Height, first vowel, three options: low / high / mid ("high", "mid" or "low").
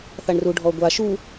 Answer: low